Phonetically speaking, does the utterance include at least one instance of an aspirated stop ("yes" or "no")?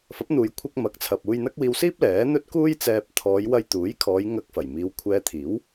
yes